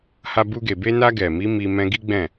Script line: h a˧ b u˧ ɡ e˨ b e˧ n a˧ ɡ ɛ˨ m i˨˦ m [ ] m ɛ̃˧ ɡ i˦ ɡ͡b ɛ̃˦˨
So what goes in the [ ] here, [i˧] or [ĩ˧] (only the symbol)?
i˧